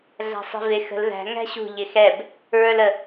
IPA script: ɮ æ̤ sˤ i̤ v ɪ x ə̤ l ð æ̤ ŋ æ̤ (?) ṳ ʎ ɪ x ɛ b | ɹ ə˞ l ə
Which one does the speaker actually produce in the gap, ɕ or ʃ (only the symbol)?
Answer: ɕ